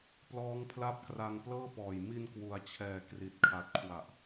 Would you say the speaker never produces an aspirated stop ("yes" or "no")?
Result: no